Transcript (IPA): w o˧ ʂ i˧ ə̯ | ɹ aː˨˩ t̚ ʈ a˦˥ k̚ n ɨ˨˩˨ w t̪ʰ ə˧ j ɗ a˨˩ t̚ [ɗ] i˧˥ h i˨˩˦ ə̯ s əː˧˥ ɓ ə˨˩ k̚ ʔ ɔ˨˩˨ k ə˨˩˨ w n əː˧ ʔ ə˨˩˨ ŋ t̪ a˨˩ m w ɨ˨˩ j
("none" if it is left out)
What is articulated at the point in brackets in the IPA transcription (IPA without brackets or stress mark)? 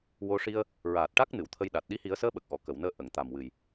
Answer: ɗ